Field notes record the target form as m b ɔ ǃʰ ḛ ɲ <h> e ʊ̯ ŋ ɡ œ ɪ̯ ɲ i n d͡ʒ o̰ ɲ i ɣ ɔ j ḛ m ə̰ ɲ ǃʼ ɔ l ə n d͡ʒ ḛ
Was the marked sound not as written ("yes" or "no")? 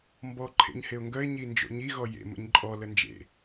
no